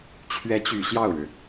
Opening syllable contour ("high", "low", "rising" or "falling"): rising